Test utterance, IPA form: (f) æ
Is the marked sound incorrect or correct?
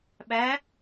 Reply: incorrect